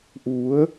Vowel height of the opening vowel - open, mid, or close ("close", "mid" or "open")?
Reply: close